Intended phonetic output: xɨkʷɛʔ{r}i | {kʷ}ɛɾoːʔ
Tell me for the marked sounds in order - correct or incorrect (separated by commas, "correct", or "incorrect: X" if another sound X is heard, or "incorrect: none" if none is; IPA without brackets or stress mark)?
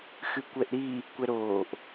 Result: incorrect: ɾ, correct